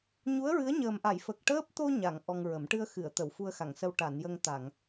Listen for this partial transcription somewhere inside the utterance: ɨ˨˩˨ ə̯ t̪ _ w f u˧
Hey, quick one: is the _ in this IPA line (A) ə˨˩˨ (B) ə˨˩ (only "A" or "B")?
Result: A